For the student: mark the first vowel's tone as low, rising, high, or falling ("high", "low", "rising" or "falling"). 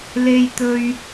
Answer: high